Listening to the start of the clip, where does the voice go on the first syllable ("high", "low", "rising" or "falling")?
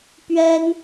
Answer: high